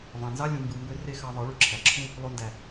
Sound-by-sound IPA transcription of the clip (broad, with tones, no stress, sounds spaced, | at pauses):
v ɑ̃˨ n z ɑ˦ lʲ ũ˨ m b ɯ˨ m b ø˧ r e˧ x ɑ˧ ðˤ ɯ˨˦ ɭ y˧ ǁʰ æ˨ ǁʰ ũ˦ | lˠ o˧ n d æ˨